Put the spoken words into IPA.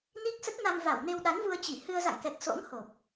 n i˦˥ k̚ s ə˦˥ t̚ n a˧ m v a˧˩ w n e˧ w ɗ a˨˦ n v u˧ ə̯ t͡ɕ i˧˩ h ɨ˧ ə̯ z a̰˧˨ ŋ k ɛ˨˩ k̚ s o̰˧˥ ŋ h o˨˩ p̚

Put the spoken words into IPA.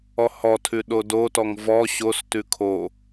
ɔ h ɔ tʰ ʉ ɗ o d o t ɔ ŋ v ɔ ɕ o s t ʉ kʰ o

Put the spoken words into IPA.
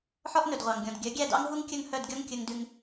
ħ ɔ˥ ʔ n ɵ˩ d ʁʷ ɑ˩ ŋ ɡʲ ɔ̃˩ d ɡʲ œ˩˥ ɡʲ æ˥˩ d ɑ̰˥ ŋ ɦ u˥ ŋ kʲ ɵ˥˩ ŋ h œ˥˩ d ɡʲ ɔ˥ ŋ kʲ ɵ˧ ŋ d ʉ˧ ŋ

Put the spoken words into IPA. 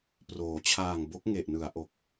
p r oː˩˦ t͡ɕʰ aː˨˩ ŋ b o˦˥ k̚ ŋ e˨˩ ʔ n ɯ˩˦ a̯ ʔ o˨˩ k̚

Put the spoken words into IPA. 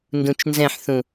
n d ũ t͡ʃ n z ɛ̃ ħ θ ũ

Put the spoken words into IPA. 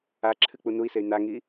a ǁʰ ɨ k͡p u n u i̯ s e y̯ n a ŋ i

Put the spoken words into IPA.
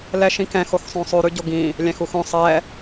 l ɛ ʃ ĩ k ɛ̃ x o x sˤ õ sˤ ʉ ɾ ʉ ɟ o ɡ ĩ | lʲ æ̃ x u x õ sˤ ɛ

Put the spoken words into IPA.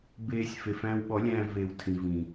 b eː˧ sʲ f e˨ f æ̃ː˧ w ɓ ɔ˨˦ lʲ æ̃ː˧ v eː˨ w tʰ ĩ˨ v ĩ˨

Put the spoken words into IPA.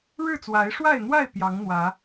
ɻ ɻ̩˥˨ t͡s w a˨˦ ɪ̯ ʂ w a˥˨ ɪ̯ n̪ w a˥˨ ɪ̯ p j ɑ˨˦ ŋ n̪ w ä˨˦

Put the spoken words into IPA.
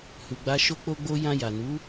h u˨ ɡ͡b a˧ ʃ o˧ k͡p o˧ ɡ͡b o˧ j ã˧ j a˨ n u˨˦

